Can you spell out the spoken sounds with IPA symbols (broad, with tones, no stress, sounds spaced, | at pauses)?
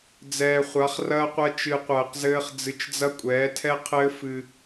d͡z ɛː˨ χʷ a˨˦ χ r ɐː˦ qʷ ɐ˦ t͡ʃ ɨ˧ qʷ ɐː˧ q z ɘː˦ χ d͡z ɨ˧ t͡ʃ d͡z ɐ˦ kʷʼ ɛː˨˦ tʰ ɛ˦ qʰ ɘː˦ f ɨ˧